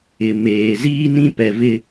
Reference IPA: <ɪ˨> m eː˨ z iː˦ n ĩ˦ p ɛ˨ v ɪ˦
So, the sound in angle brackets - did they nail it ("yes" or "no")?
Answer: yes